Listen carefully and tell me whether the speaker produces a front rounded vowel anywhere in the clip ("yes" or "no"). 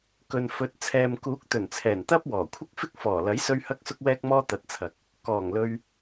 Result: no